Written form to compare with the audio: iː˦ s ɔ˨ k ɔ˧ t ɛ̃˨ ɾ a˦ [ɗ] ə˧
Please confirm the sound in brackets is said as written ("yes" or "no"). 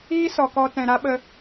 no